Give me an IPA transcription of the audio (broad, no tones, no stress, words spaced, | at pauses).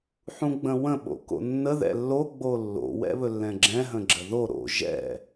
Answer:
ħũɡ͡bə̃wə̃ ɓo̰ko̰nːə ðɛ̰lːo ɡ͡bolːo̰ wɛ̰βɵlːɛ̃ɡ͡ǁɛ̃ ɦə̃ɡ͡ǁəðo ɾo̰ ʒɛ̰